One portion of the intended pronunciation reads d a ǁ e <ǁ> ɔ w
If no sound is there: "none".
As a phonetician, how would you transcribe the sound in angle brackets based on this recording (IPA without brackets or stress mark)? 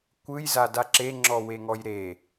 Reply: ŋ͡ǁ